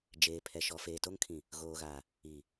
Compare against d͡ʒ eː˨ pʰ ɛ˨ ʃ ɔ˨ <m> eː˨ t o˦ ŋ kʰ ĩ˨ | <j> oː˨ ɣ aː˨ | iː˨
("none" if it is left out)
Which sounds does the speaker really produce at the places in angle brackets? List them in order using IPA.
f, ɣ

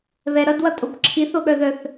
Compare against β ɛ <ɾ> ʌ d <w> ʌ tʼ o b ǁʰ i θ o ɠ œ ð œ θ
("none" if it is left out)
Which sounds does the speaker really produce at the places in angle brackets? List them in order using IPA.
ɾ, w

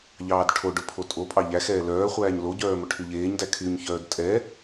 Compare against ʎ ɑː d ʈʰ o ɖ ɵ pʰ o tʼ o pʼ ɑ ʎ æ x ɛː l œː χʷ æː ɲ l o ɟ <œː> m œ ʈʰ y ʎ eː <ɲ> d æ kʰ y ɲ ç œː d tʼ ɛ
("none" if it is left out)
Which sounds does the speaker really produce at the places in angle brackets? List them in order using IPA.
œː, ɲ

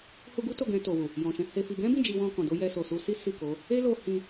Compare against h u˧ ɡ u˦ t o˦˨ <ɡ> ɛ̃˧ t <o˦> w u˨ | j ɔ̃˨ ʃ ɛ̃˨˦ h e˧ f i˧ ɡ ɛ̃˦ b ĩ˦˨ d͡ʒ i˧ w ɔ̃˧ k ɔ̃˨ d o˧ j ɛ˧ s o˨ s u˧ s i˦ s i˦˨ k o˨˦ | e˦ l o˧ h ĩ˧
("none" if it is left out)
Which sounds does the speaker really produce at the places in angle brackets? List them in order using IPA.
ɡ, o˨

